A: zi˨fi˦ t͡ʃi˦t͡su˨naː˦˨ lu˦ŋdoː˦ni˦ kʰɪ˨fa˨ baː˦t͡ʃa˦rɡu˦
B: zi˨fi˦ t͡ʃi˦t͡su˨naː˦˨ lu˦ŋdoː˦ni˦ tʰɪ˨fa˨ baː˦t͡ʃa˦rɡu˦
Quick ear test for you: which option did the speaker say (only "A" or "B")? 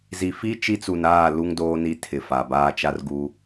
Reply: B